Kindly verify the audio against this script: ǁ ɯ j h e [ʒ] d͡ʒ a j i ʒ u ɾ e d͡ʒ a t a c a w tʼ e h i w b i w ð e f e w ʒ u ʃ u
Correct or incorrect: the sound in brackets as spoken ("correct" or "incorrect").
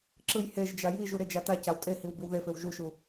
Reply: correct